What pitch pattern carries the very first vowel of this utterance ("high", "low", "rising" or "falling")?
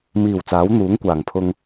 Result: low